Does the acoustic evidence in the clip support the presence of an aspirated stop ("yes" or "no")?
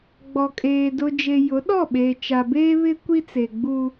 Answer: no